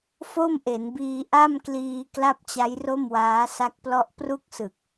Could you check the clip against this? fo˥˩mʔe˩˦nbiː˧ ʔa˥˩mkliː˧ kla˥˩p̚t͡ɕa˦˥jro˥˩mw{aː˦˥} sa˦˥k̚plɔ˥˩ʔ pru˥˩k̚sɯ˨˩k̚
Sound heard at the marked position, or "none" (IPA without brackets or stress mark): aː˦˥